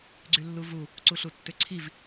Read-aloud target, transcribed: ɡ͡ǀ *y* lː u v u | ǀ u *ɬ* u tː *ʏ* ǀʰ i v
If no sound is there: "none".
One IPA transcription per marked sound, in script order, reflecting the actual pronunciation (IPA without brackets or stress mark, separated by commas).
y, ɬ, ʏ